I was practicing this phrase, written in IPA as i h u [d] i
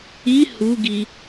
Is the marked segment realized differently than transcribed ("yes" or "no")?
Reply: yes